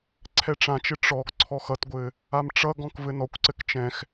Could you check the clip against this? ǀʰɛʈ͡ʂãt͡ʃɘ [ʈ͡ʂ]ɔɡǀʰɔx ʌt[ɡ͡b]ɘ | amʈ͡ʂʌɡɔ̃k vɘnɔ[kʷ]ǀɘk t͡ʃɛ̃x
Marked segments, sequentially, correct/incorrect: correct, incorrect: ɡʷ, correct

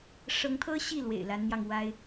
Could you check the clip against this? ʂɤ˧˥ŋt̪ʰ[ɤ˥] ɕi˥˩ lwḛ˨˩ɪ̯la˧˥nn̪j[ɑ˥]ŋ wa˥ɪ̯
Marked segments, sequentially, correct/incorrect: correct, incorrect: ɑ˧

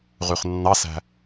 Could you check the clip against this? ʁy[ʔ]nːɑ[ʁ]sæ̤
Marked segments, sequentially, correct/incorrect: incorrect: χ, incorrect: none

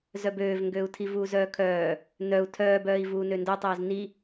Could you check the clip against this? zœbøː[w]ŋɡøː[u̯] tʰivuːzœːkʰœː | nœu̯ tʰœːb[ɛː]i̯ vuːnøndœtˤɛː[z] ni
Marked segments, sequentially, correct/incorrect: incorrect: v, correct, incorrect: œː, correct

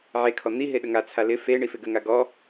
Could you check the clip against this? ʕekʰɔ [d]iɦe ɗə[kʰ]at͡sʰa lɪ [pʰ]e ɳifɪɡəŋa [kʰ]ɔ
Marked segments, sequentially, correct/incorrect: incorrect: n̪, incorrect: ŋ, incorrect: f, incorrect: ɡ

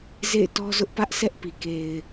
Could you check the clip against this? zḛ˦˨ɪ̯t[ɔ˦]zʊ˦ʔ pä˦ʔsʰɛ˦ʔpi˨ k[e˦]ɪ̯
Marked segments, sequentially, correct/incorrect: correct, incorrect: e˨

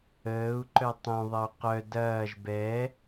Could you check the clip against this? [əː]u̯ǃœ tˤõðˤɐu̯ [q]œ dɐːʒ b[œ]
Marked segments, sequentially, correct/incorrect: correct, correct, incorrect: ɛ

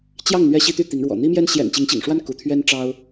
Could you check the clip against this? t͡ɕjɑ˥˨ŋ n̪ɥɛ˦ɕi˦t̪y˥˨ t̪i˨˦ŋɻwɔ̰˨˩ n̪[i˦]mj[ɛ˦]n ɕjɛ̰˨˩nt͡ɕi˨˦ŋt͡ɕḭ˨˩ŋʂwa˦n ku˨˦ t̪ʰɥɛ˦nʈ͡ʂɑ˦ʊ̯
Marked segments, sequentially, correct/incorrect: correct, correct

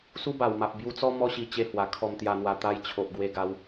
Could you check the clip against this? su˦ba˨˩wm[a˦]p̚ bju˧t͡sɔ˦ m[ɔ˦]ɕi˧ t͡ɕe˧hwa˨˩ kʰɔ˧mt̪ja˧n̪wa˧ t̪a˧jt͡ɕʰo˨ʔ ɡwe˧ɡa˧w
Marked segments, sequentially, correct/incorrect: incorrect: a˨, correct

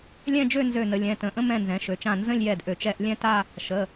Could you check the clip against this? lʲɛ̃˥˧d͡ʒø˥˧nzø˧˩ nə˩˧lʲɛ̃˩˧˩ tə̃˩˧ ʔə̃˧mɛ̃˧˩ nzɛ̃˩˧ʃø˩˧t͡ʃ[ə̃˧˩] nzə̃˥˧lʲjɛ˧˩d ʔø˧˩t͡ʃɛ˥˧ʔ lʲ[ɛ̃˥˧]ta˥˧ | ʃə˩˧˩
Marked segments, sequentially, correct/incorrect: incorrect: ã˧˩, correct

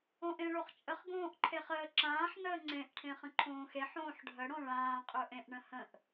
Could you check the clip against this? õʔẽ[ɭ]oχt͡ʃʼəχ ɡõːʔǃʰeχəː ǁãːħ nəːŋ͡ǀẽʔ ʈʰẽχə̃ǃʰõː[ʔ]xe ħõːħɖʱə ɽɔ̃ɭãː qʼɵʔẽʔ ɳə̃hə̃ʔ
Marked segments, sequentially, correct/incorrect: correct, incorrect: none

